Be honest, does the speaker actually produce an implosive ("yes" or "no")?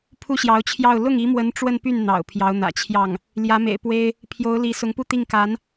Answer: no